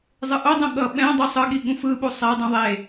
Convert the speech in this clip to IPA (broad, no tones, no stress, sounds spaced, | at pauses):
zˤ ɯ ʔ o dˤ ũ ɠ ʌ ɓ ɛ̃ dˤ u sˤ ɯ ɠ i ɠ ũ f ɯ ɓ u sˤ ɛ dˤ ũ ðˤ e